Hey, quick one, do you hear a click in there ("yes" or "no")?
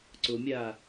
yes